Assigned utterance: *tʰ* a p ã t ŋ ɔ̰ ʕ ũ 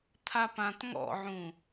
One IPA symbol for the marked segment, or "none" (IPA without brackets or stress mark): tʰ